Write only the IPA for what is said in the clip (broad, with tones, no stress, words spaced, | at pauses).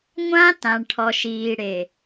ŋʷã˦ tã˨ɳʈʰɔ˨ʃ iː˨ɽe˨